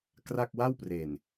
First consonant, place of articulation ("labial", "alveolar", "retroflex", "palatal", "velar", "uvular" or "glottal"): velar